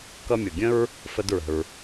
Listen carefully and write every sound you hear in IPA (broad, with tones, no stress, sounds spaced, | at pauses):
k ʌ˧ mʲ ʊ˩ ɡʲ ə̃˥ ɹ | f ə˧ d ɹ ə̤˩ ɹ